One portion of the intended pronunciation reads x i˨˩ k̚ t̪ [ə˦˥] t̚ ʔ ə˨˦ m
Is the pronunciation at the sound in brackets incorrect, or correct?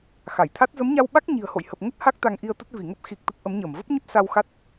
correct